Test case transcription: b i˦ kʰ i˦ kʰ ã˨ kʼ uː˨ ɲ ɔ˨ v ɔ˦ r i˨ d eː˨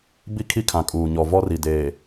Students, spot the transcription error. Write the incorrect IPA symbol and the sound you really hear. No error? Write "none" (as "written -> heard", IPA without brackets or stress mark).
none